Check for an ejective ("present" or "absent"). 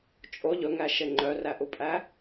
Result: present